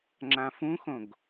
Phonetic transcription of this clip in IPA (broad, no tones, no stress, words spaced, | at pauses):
ŋ͡ǁãfũxõɡ